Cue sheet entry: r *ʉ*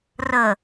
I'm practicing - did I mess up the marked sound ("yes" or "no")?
yes